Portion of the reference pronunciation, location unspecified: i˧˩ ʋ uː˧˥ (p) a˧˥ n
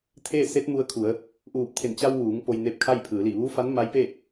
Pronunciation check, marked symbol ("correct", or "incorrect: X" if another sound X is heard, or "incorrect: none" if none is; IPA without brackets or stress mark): incorrect: f